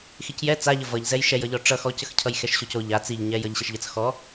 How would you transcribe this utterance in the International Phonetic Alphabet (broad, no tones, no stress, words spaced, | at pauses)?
xicjɛ t͡saʎə vʌʎzɛj ʃɛjʌʎɔ ʈ͡ʂʌx ɔcəx cʰʌjxɛʃɕoco ʎa t͡siʎɲɛj ʌʎɕəʃʎət͡s xɔ